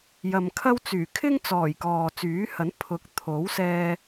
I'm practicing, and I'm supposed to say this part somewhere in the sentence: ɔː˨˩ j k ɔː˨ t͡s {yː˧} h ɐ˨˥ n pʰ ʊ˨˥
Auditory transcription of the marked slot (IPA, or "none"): yː˨˥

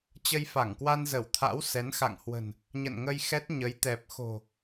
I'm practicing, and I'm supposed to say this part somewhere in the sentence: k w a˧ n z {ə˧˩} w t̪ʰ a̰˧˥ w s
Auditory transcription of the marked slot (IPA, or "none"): ə˧˩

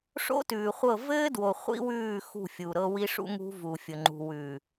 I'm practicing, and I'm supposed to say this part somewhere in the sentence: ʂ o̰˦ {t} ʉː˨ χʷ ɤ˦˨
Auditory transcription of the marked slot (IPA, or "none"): t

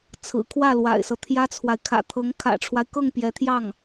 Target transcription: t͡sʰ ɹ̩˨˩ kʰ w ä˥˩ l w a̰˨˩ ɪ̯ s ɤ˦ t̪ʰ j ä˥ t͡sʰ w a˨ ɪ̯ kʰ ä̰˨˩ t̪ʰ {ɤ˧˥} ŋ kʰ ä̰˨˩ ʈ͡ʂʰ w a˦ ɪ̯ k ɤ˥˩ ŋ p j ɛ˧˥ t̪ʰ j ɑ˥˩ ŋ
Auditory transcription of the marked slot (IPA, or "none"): ɤ˧˥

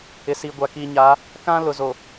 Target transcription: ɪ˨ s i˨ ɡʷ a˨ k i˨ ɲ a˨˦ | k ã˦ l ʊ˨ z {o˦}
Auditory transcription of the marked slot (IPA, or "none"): o˨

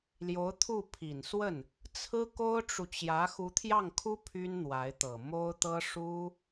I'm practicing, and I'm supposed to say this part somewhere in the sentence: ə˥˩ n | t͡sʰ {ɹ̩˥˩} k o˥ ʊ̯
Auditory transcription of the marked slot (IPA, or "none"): ɹ̩˥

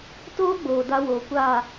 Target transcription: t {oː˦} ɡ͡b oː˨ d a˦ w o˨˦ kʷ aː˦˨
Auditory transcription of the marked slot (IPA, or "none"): oː˦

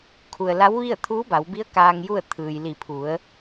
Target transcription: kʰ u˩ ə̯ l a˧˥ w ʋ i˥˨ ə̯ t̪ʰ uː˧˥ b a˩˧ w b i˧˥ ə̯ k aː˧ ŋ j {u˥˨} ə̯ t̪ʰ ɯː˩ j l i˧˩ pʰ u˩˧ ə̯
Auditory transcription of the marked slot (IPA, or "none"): u˥˨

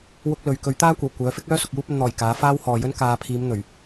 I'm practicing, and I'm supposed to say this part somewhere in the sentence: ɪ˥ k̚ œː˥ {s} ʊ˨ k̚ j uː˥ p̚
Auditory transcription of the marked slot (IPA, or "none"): s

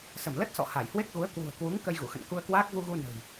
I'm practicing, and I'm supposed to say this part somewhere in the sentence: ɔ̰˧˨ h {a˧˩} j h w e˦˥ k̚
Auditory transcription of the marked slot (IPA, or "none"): a˧˩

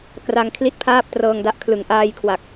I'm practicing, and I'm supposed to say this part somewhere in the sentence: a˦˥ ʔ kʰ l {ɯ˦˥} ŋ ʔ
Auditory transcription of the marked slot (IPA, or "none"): ɯ˩˦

